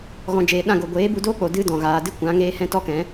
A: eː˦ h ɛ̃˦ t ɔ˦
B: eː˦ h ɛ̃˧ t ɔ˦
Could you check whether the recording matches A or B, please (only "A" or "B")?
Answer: A